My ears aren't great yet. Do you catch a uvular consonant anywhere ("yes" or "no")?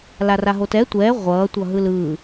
yes